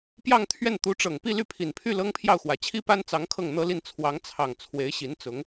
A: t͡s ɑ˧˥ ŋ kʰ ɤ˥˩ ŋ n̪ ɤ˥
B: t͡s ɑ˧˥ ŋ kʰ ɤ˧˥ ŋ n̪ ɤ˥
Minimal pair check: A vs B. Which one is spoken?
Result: A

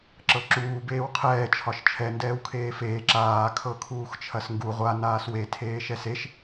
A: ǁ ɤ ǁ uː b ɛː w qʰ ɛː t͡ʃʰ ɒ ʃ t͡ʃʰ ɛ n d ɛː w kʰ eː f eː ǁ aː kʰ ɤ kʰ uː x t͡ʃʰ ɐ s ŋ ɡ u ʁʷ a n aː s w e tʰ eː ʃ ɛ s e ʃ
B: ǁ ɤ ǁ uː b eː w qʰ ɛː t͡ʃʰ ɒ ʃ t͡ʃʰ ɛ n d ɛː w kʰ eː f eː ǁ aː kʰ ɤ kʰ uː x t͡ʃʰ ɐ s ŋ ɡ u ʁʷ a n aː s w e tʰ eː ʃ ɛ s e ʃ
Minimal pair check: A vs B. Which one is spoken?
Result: B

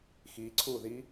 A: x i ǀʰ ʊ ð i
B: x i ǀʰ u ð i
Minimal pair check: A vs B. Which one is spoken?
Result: B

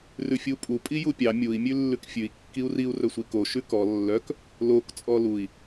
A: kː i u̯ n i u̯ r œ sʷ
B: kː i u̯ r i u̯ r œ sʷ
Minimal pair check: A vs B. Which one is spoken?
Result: B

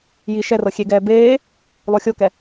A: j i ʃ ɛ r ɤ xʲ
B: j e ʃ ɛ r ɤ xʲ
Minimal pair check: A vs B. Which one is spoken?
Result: A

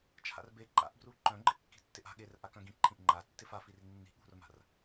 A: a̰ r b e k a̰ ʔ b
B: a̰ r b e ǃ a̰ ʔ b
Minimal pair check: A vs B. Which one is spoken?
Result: B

